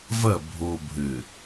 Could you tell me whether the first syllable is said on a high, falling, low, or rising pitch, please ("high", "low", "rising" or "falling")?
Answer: falling